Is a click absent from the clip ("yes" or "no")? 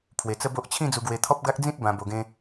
yes